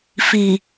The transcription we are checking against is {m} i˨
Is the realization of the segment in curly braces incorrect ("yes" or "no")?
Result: yes